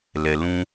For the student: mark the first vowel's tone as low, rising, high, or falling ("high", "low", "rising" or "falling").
low